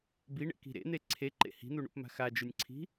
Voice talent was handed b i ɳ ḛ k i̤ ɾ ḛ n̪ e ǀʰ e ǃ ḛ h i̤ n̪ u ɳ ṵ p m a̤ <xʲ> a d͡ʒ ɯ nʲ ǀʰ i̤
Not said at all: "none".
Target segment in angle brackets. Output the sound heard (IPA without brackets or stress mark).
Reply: x